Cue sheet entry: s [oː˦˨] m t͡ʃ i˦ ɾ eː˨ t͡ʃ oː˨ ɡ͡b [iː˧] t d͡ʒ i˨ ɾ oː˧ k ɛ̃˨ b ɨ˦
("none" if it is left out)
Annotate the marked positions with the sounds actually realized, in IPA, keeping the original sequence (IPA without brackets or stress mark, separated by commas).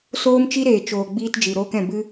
oː˦, iː˧